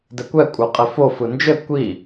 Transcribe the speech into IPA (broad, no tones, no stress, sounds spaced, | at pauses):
d ɘ kʷ ɛ kʷʼ ə˞ qʼ ɘ f o f ɯ n d͡ʒ ɘ kʷ i